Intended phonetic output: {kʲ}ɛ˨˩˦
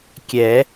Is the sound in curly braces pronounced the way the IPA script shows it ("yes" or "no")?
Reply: yes